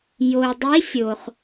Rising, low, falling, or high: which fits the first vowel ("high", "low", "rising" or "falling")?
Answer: low